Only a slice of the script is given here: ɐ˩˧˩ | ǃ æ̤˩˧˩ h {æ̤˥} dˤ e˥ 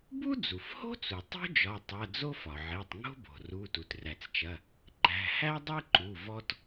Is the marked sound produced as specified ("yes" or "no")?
no